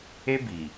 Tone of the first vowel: high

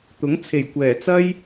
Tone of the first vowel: rising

